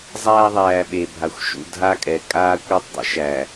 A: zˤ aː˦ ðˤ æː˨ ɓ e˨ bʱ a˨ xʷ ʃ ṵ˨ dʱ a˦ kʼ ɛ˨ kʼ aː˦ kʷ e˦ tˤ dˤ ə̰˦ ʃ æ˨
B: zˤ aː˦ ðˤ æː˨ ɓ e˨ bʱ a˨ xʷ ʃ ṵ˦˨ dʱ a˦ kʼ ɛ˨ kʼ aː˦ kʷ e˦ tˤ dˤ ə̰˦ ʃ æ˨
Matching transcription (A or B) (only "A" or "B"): B